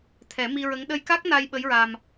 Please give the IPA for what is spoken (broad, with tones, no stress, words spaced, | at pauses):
t̪ʰɛ˨˩˦mi˧ɹə˧˥ŋ ɗə˧jka˦˥k̚ na˧j ɓə˧˥jɹa˧m